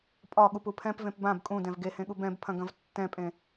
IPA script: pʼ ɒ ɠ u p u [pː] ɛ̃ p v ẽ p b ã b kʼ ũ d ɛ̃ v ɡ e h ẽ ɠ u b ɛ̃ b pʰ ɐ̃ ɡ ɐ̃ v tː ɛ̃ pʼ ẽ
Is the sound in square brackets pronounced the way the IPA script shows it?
no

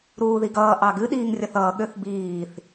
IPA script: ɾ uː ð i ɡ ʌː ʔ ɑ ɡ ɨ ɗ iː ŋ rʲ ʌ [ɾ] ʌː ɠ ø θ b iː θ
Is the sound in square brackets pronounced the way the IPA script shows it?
no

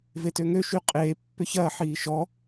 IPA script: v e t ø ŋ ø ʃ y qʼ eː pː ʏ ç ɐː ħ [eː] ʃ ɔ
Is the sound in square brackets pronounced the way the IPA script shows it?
no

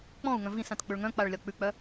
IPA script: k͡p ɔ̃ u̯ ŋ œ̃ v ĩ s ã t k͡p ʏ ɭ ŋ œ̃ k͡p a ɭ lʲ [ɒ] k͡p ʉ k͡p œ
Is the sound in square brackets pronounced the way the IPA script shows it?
yes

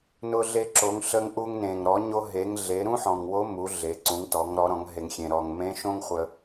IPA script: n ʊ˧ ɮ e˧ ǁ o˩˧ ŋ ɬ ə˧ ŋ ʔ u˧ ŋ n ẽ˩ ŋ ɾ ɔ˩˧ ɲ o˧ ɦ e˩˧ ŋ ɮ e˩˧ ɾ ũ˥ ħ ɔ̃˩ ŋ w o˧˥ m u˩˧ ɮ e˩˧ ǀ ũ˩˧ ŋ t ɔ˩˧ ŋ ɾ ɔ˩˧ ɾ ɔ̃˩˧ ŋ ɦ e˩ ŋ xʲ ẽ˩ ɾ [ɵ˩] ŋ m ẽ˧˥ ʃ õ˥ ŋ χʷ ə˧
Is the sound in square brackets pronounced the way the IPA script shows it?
no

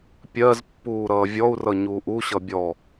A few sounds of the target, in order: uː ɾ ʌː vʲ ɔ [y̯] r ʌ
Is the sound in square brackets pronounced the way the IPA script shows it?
no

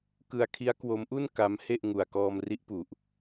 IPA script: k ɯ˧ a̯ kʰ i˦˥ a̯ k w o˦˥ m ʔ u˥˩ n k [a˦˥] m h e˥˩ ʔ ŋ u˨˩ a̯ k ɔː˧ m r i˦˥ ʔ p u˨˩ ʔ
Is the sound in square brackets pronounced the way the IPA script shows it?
yes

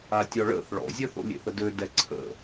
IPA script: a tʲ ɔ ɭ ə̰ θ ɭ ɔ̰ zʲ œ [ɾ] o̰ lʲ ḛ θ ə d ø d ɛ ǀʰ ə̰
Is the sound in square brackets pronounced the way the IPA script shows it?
no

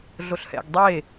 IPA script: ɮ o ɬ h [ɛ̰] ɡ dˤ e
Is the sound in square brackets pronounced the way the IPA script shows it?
yes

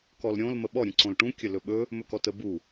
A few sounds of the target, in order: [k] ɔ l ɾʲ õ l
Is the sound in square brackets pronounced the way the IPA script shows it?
yes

